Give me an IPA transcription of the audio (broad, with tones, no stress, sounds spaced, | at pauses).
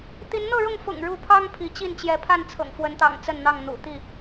t̪ i˨˦ n n̪ ɤ˥˨ ɻ ʊ˥˨ ŋ f ʊ̰˨˩ ŋ ɻ u˥˨ pʰ ɑ˦ ŋ pʰ i˨˦ t͡ɕ i˥˨ n t͡ɕ j ɛ˨˦ pʰ a˥˨ n t͡sʰ ɤ̰˨˩ ŋ f w ə˨˦ n t̪ ɑ̰˨˩ ŋ t͡s ə˥˨ n n̪ ɑ˥˨ ŋ n̪ ṵ˨˩ t̪ i˥˨